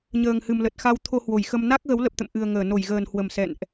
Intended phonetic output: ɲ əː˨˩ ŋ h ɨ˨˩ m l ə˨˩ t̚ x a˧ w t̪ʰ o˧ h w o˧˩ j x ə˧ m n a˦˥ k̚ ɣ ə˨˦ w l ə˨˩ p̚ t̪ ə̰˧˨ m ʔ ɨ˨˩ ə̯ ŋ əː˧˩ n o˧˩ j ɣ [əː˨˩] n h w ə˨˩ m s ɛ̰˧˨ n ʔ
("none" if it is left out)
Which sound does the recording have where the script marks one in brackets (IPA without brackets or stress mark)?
əː˨˩